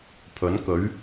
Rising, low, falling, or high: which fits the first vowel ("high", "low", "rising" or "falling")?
rising